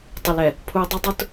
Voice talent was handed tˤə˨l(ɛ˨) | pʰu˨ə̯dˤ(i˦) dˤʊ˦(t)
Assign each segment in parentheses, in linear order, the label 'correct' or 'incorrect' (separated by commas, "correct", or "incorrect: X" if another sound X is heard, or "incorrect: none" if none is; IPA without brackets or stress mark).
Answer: correct, incorrect: e˦, correct